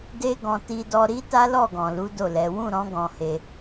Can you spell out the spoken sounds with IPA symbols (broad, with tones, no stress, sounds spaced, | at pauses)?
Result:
d e˦ ɡ ɔ̃˧ t i˧ d ɔ˧ ɾ i˦ t a˦ l ɔ˦˨ ɡ ɔ̃˨ l u˨˦ d o˦˨ l ɛ˨˦ w ũ˦˨ ɾ ɔ̃˨˦ ɡ ɔ̃˧ h e˧